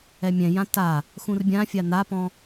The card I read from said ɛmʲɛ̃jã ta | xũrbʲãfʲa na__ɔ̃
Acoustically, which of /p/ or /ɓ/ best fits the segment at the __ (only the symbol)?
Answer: p